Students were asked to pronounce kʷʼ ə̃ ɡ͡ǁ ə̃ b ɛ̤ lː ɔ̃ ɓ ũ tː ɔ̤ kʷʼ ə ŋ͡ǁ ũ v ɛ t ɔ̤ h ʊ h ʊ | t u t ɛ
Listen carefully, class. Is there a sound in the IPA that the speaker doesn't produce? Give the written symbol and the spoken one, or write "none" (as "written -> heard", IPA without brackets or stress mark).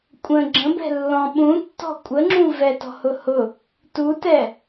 none